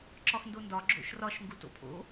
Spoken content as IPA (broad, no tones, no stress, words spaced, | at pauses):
ǁɒxndondɒ ɡ͡ǁo̰ʃrɒʃ ŋɡuto̰pʰo̰